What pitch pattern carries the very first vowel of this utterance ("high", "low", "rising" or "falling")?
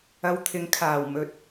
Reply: low